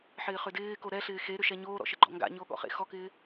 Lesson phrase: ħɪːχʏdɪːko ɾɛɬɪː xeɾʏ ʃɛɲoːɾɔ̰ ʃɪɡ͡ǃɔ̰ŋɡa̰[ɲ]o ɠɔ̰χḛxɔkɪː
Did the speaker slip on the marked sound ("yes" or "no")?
no